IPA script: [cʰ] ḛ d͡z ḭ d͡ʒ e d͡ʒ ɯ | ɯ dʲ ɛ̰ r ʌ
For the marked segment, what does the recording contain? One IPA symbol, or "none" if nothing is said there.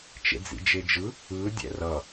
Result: t͡ʃ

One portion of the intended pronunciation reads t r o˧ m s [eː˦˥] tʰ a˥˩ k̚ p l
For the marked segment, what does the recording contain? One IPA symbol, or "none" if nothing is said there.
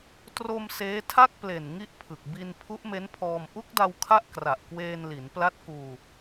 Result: eː˦˥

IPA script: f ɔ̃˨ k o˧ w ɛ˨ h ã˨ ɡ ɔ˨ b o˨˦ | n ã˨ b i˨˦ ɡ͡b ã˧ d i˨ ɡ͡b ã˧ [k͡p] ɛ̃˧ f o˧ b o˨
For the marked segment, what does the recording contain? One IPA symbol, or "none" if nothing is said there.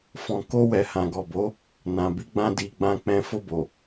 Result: k͡p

